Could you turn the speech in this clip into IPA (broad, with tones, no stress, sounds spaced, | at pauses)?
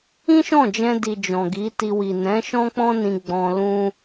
ĩ˦ ʃ ɔ̃˦˨ d͡ʒ ɛ̃˧ d i˨ d͡ʒ ɔ̃˨ ɡ i˨˦ t i˧ w i˨ n ɛ̃˨˦ ʃ ɔ̃˦ k͡p ɔ̃˦ n ĩ˧ ɡ͡b ɔ̃˧ l ũ˦